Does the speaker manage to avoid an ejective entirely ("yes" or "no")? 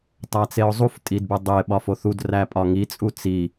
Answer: no